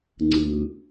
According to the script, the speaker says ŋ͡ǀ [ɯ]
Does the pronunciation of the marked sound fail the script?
no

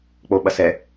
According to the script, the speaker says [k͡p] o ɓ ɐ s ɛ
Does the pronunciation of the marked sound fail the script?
no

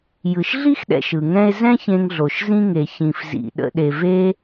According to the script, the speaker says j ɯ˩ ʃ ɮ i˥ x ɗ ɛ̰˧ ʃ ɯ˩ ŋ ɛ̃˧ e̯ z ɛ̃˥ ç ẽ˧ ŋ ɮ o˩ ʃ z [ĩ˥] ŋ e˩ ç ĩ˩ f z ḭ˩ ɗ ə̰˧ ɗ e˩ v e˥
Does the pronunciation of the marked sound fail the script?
yes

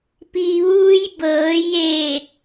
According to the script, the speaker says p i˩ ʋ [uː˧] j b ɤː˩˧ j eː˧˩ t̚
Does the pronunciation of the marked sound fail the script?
no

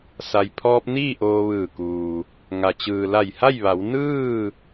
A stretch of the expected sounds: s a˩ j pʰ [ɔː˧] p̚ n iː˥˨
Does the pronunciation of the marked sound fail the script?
no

